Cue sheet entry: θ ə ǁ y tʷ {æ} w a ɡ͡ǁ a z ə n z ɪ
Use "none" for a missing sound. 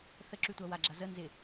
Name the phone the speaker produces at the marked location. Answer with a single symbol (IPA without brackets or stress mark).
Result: a